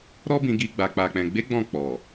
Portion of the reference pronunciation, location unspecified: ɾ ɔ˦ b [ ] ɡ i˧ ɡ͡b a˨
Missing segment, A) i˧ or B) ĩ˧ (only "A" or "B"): B